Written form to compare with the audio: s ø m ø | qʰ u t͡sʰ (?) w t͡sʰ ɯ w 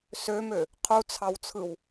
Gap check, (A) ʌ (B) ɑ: B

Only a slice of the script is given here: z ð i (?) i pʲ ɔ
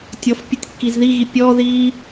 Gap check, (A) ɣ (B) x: A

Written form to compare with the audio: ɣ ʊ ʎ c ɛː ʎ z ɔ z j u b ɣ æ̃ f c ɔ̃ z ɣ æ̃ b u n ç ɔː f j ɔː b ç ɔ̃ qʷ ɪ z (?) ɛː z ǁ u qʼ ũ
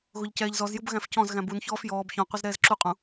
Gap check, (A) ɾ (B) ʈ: A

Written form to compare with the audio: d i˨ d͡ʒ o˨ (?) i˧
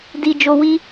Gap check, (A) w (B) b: A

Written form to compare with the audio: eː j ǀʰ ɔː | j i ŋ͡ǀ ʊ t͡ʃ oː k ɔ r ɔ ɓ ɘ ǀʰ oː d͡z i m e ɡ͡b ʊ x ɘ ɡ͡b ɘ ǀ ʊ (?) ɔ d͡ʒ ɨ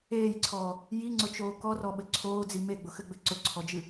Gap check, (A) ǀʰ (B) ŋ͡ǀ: A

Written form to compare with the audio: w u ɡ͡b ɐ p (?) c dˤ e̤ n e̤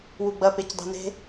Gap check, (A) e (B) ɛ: A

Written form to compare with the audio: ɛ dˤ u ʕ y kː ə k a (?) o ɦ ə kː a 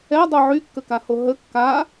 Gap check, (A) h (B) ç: A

